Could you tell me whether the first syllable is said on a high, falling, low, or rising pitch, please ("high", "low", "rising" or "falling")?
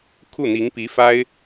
falling